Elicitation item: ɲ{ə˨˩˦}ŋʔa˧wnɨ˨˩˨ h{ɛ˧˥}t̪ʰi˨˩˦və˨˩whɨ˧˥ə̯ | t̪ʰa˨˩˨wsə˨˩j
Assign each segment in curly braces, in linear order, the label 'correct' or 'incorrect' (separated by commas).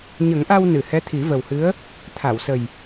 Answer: correct, correct